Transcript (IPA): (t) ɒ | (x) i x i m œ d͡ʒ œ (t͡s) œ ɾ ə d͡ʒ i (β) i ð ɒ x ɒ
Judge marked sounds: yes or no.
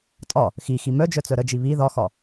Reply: no, yes, yes, yes

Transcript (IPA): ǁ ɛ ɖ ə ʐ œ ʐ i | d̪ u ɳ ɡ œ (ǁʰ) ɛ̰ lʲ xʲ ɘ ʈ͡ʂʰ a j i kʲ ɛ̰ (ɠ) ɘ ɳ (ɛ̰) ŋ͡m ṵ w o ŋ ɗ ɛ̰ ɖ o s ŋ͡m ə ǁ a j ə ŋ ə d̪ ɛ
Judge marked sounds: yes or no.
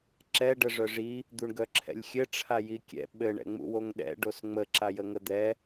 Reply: yes, no, yes

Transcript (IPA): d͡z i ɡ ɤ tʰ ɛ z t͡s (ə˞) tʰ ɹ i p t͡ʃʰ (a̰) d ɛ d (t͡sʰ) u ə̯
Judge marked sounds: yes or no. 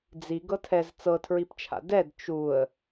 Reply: no, yes, no

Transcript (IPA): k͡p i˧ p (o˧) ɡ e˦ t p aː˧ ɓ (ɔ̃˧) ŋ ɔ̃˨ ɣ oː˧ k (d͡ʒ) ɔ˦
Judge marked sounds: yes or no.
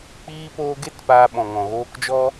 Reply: no, no, yes

